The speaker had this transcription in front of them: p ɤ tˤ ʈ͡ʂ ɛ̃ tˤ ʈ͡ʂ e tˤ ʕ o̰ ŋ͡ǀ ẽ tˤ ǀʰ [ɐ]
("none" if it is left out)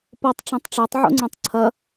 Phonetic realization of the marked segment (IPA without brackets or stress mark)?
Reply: ɐ